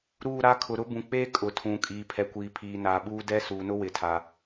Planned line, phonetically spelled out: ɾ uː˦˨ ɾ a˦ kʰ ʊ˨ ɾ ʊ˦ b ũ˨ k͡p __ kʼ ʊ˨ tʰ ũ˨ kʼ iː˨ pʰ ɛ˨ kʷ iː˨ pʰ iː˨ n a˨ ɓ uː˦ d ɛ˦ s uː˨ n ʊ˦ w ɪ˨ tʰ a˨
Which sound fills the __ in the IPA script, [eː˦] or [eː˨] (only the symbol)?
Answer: eː˦